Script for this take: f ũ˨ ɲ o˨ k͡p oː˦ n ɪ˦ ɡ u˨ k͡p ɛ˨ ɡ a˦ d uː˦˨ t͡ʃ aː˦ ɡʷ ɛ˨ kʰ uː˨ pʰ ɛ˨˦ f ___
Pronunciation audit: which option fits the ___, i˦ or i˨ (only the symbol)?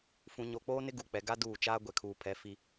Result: i˦